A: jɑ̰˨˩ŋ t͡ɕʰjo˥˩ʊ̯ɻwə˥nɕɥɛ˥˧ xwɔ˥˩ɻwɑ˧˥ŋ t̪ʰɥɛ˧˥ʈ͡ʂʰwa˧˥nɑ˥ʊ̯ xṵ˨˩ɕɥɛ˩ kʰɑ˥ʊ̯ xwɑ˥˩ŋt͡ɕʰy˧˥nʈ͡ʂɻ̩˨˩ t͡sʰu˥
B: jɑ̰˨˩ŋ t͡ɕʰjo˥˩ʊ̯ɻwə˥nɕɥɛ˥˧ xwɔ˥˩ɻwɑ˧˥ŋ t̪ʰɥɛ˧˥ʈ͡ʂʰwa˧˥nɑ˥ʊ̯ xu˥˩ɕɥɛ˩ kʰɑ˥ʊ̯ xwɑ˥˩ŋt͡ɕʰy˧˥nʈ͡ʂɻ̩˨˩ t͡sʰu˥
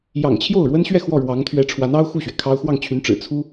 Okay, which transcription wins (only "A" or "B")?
B